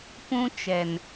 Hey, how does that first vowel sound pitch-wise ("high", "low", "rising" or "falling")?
high